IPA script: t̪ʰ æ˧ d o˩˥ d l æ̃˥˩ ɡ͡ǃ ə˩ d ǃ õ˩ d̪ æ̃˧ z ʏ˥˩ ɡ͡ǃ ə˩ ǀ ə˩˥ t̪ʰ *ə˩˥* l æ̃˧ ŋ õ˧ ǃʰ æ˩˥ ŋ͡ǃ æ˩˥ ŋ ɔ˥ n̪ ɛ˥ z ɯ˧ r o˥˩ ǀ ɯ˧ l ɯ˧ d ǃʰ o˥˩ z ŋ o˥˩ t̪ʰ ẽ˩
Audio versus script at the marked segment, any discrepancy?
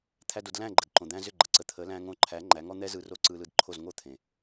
no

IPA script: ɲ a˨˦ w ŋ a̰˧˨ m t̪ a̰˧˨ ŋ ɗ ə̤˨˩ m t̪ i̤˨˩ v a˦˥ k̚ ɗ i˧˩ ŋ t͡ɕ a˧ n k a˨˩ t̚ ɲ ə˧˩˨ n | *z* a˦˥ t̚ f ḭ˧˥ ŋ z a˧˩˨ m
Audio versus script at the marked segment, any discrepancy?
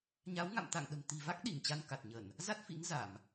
no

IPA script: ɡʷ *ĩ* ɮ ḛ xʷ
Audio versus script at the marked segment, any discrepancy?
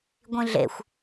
no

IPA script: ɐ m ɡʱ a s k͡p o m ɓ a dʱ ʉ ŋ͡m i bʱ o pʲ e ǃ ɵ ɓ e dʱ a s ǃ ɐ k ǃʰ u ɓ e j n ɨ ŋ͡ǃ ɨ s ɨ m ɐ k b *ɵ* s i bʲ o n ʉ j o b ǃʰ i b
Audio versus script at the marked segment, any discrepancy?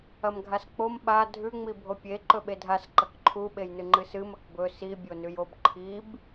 no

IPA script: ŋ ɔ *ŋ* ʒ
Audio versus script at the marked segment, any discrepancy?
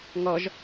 yes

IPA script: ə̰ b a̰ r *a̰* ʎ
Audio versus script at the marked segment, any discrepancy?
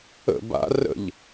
yes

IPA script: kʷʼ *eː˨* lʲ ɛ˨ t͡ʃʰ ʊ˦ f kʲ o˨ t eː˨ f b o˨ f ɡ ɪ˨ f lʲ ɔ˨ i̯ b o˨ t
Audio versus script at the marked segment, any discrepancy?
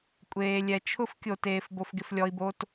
no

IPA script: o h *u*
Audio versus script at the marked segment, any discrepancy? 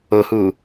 no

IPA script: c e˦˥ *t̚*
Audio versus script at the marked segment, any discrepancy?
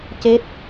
no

